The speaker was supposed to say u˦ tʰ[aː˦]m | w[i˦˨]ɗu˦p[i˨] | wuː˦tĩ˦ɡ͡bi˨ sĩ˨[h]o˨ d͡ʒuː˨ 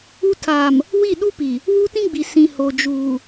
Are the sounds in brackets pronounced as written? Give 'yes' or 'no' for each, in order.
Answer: no, yes, yes, yes

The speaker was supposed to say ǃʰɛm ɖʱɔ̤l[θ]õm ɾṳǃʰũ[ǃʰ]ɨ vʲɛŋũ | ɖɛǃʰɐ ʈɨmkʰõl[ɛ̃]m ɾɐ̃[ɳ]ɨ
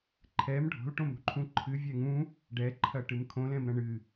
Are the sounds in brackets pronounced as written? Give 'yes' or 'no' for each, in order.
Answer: no, yes, yes, yes

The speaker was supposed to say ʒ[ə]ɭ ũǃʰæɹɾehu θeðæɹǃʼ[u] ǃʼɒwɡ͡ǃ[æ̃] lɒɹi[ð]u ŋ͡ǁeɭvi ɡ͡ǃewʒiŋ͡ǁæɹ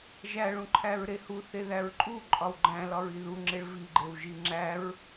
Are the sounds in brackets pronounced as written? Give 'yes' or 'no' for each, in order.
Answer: no, yes, yes, yes

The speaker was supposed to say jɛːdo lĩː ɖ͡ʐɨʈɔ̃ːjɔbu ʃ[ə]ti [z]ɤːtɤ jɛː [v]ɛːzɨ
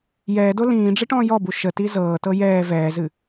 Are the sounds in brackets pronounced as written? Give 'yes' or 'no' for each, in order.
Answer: yes, yes, yes

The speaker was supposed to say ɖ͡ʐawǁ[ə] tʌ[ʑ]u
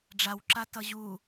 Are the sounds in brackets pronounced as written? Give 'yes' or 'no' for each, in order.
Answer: no, yes

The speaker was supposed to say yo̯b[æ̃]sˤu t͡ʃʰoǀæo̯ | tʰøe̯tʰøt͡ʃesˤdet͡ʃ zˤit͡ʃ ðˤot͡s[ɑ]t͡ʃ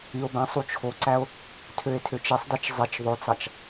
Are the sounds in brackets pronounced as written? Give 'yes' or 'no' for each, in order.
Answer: yes, yes

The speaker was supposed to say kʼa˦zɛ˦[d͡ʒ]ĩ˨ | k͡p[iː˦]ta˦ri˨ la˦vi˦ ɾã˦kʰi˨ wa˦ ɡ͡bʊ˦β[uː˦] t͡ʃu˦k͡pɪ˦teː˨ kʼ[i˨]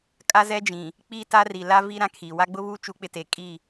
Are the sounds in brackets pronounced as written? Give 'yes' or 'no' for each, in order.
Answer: yes, yes, yes, no

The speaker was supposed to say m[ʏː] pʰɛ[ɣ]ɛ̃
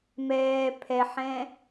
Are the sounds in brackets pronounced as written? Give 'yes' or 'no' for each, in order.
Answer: no, no

